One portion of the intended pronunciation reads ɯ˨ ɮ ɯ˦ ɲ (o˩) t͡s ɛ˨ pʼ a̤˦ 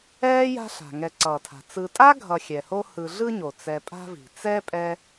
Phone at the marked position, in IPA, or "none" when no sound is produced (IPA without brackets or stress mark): o˩